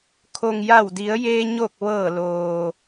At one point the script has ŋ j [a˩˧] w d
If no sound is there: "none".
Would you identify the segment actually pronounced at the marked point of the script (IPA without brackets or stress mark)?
a˧˩